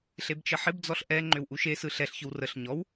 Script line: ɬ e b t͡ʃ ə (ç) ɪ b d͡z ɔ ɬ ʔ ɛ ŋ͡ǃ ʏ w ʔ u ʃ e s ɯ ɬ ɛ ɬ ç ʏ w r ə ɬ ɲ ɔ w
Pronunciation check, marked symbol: incorrect: ħ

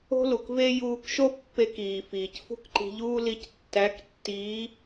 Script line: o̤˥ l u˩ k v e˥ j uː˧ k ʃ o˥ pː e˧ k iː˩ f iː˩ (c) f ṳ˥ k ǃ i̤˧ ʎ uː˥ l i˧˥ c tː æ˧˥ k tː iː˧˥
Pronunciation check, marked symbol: correct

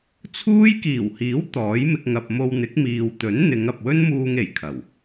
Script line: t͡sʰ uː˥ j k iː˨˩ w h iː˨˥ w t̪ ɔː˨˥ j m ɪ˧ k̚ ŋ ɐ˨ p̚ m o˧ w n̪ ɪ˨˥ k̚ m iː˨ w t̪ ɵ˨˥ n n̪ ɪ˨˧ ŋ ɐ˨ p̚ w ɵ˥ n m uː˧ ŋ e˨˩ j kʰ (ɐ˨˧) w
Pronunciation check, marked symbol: incorrect: ɐ˨˩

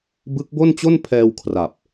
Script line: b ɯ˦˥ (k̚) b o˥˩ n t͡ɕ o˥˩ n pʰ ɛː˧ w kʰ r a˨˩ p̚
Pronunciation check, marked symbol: correct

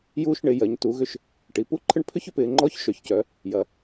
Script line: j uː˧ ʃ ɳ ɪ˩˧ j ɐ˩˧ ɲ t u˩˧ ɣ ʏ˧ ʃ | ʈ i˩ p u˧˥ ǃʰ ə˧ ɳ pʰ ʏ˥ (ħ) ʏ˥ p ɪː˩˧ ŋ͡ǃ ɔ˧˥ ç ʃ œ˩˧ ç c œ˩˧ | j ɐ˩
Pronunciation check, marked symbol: incorrect: ç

